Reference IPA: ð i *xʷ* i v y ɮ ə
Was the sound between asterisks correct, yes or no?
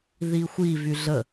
yes